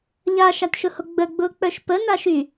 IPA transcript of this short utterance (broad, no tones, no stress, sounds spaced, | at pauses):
ʎ a ʃ a t ʃ ʊ h o ɡ͡b ə ɡ͡b ʊː k͡p œ ʃ p ə n a ʃ y